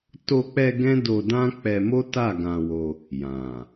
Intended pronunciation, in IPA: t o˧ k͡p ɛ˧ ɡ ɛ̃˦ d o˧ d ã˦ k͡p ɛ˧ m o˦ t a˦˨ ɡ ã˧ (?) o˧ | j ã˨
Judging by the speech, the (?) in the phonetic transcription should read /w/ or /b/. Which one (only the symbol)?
w